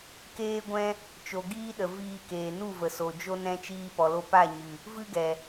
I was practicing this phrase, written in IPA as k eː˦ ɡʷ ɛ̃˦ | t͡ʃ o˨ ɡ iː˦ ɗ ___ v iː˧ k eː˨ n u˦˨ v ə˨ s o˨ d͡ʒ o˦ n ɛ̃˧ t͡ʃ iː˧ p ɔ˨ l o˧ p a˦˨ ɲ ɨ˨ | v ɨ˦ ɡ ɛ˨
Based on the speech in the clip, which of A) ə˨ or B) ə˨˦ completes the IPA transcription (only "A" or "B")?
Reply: A